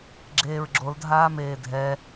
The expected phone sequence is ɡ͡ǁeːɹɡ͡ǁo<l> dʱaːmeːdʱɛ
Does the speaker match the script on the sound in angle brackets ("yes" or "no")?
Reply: yes